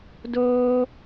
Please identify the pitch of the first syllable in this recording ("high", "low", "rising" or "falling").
high